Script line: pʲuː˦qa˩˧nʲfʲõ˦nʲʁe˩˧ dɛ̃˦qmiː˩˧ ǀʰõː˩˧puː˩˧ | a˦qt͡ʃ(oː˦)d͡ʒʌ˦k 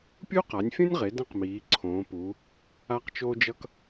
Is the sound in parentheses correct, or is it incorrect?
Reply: correct